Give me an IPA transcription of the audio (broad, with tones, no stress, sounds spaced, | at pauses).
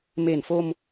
m e˨˩ n f o˧ m